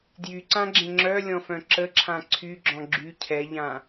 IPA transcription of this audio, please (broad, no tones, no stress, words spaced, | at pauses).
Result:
djyǀãɡ͡ǁẽ ŋ͡ǁœlʲɔ̃fœ̃ ǁəǁʰã ǀʰyɡ͡ǁɔ̃ ɡ͡ǁy cʰɛʎã